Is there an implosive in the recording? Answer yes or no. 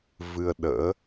yes